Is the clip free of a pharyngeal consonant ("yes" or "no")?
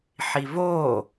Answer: no